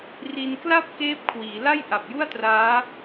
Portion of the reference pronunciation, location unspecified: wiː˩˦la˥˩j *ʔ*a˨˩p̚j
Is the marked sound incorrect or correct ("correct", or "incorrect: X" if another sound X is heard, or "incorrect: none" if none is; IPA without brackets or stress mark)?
correct